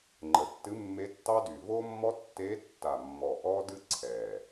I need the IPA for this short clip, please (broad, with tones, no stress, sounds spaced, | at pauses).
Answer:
ŋ͡ǃ ə˨˩ tː ɨ˧˥ mː e˧˥ tː ɑ˥ d y˨˩ v o˥ mː ɔ˥ tː e˧˥ tː a˨˩ mː ɔ˨˩ ʔ ɔ˥ d ɨ˥ ǀʰ ɛ˨˩